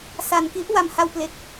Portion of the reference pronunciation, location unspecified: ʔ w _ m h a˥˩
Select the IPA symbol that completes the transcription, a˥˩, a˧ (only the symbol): a˧